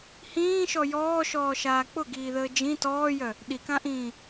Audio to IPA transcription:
h ĩː ʃ ɔ j ɔː ʃ ɔː ʃ aː k͡p ʊ ɡ iː ð əː d͡ʒ ĩ t ɔː j œ | ɗ i k ã ʔ ĩː

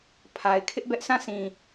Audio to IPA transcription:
pʰ a˨ ɪ̯ kʰ ɪ˦ ʔ b ɛ˦ ʔ sʰ ã˦˨ sʰ ĩ˨

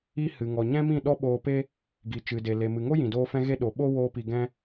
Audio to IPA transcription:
i˦ h ɨ˨ ŋ ɔ˨ ɲ ɛ̃˦ m ĩ˦˨ ɗ ɔ˦ ɓ oː˧ p e˦ | ɡ i˨ t͡ʃ ɨ˨ d e˨ l e˨ m ɨ˨ ŋ o˦ j ĩ˨ d oː˦ f ɛ̃˦ ɣ e˦ ɗ o˨˦ ɓ o˦ w oː˧ p i˨ ɡ ɛ̃˦

